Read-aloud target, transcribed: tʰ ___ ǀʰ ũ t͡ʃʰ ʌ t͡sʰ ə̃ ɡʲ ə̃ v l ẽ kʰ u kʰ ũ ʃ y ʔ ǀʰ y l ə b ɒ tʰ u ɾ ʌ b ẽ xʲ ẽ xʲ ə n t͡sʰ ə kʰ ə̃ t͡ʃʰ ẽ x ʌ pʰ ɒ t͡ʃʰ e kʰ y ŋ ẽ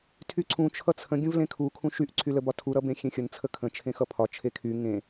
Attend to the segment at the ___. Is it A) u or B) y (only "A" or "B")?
B